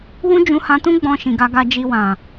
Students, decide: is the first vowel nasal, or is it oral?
nasal